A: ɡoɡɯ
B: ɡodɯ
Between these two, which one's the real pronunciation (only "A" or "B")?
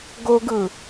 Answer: A